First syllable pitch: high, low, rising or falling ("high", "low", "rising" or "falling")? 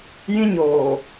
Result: high